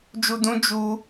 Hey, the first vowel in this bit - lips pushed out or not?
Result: yes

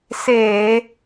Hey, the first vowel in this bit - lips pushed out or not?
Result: no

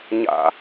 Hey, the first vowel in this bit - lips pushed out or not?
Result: no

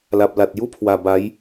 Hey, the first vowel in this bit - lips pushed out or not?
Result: no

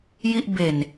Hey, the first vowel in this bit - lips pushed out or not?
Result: no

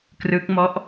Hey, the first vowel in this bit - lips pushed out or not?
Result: no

